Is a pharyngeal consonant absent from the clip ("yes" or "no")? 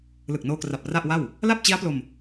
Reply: yes